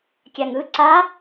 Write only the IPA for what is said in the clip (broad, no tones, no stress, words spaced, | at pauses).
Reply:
kʲaŋɯ ǀa